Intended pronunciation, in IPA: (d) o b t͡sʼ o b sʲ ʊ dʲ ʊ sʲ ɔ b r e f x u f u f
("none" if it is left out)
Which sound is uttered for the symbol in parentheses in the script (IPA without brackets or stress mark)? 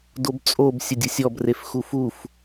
d